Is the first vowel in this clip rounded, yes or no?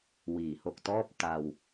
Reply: no